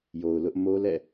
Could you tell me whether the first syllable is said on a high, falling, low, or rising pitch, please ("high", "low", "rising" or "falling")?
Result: low